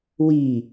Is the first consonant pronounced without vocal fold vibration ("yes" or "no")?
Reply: no